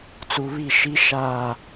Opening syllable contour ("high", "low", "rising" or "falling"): low